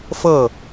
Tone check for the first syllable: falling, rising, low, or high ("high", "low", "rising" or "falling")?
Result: falling